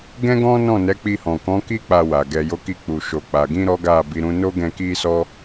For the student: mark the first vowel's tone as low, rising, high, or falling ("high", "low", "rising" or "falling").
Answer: high